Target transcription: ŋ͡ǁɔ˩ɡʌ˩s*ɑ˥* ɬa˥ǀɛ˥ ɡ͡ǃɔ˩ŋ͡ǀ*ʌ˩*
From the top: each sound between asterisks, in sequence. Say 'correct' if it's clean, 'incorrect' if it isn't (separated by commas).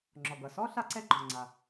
incorrect, incorrect